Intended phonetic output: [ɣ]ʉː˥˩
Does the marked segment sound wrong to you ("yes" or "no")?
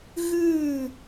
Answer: no